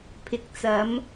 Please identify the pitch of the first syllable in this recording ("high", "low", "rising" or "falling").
low